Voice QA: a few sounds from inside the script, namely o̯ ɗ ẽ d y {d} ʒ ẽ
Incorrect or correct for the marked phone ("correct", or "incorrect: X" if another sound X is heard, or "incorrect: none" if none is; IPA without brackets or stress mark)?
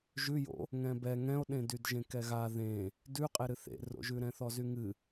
correct